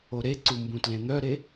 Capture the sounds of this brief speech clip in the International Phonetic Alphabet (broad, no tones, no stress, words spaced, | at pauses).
oɾeǀu mbũtlẽn̪œɾe